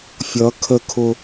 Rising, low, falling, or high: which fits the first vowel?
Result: rising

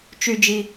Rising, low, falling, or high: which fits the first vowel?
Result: high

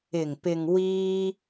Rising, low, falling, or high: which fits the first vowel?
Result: low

